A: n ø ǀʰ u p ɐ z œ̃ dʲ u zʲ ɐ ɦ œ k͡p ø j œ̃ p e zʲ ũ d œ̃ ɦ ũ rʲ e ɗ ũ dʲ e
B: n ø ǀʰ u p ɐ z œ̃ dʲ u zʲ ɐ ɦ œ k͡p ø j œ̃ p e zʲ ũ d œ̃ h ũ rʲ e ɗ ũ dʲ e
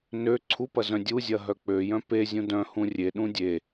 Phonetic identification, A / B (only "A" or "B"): B